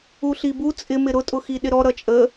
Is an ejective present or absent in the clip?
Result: present